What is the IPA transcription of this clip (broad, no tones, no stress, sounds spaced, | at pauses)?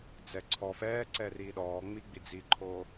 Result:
d͡z ɛ ǀʰ ɔ f ɛː ǀ ɛ r iː ɗ ɔː ŋ͡m i ɡ͡b i d͡z i ǃʰ oː